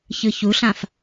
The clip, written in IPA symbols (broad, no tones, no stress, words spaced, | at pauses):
çɯçuɬãf